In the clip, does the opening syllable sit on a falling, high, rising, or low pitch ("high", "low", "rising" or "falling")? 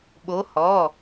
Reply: rising